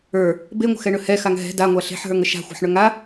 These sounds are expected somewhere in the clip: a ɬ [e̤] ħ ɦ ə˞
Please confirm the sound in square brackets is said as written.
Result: yes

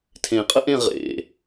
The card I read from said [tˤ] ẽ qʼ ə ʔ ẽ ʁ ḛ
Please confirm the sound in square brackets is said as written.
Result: no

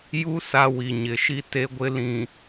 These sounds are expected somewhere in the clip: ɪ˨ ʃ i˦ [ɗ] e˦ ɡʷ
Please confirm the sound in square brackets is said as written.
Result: no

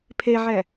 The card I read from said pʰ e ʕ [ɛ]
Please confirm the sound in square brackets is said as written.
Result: yes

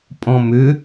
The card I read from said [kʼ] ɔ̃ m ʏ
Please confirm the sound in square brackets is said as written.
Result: no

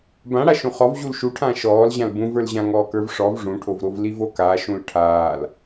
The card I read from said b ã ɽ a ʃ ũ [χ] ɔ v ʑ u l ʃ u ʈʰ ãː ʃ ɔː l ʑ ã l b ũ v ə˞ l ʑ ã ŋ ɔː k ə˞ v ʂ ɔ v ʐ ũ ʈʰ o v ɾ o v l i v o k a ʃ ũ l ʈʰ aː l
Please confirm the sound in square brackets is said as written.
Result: yes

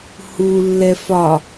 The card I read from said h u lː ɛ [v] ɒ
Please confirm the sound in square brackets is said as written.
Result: no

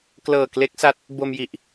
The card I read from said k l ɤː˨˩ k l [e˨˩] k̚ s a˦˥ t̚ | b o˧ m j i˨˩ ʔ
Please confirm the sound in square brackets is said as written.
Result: no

